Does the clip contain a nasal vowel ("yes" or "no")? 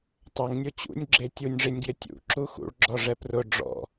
no